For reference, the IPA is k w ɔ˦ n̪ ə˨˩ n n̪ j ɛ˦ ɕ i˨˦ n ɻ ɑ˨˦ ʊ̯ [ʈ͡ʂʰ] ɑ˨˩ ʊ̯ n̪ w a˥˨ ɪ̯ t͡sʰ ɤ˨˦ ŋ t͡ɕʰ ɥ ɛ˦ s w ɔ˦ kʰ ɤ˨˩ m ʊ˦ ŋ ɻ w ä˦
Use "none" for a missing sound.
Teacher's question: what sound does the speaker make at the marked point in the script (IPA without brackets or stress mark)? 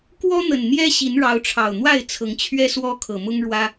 ʈ͡ʂʰ